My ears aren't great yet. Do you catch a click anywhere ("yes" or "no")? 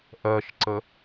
yes